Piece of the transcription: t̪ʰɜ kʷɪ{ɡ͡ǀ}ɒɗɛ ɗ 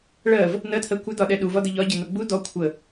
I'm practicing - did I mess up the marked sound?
yes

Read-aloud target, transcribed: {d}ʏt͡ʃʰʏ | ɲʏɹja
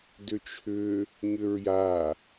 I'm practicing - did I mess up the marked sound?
no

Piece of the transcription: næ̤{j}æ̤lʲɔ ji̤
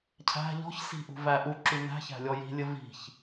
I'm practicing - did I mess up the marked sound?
yes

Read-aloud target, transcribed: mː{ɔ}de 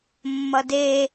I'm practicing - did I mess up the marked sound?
yes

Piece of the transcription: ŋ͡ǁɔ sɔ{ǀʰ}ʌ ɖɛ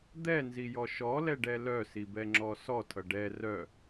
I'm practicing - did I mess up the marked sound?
yes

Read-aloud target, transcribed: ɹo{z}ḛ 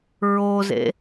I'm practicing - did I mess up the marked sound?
no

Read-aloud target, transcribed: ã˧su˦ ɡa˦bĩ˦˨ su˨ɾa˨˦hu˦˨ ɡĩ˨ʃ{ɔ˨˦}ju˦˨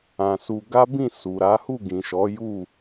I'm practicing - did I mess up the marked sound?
no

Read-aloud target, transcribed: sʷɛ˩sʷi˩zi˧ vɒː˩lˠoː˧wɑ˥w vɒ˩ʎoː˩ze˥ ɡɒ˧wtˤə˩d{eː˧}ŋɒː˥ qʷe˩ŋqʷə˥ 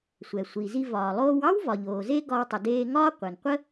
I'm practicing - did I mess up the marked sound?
no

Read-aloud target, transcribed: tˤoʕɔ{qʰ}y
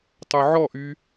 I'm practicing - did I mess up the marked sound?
yes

